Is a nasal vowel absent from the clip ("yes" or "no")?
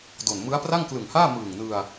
yes